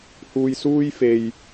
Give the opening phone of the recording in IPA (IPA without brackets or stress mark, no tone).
h